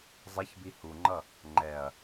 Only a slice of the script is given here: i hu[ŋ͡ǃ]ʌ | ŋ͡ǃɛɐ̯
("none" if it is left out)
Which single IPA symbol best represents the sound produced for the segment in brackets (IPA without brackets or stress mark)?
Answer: ŋ͡ǃ